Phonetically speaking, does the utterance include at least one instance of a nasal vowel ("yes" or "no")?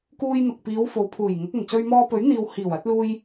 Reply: no